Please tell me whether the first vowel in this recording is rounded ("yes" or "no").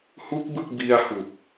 yes